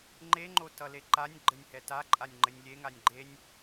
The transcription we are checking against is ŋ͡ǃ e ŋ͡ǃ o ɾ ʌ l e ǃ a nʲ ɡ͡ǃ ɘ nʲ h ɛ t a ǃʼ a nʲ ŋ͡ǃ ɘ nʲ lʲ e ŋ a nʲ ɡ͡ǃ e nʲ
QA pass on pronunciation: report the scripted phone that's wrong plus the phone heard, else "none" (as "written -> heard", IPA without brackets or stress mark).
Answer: ɾ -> t